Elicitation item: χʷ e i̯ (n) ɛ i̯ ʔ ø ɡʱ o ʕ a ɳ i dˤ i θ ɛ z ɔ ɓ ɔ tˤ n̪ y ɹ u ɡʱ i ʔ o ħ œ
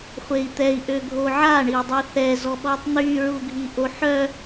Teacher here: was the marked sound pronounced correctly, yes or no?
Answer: no